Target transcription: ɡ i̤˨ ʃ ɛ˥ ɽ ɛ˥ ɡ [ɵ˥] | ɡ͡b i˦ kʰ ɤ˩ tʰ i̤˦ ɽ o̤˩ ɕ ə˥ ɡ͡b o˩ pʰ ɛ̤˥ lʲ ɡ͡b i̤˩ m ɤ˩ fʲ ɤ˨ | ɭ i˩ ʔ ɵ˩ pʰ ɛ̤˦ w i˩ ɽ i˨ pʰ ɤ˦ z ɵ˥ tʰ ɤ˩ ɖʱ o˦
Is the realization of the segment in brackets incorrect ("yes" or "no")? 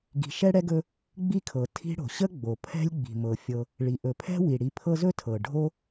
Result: yes